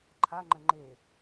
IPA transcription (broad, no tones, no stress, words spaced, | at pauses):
ǃʰaŋ͡ǃə̃ ŋ͡ǃe